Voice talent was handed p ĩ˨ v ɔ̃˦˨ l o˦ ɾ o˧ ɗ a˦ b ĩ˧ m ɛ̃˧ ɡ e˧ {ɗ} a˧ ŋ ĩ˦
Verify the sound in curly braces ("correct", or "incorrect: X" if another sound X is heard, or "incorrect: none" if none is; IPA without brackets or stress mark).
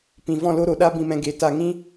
incorrect: t